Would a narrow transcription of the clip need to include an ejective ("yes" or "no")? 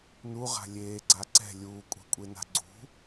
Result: yes